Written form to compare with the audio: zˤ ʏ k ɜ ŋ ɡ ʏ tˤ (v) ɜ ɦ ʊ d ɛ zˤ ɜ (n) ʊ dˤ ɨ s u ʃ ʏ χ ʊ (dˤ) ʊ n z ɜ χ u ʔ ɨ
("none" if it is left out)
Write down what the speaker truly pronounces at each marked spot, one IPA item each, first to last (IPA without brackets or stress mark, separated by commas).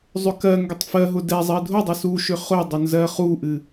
f, dʱ, dˤ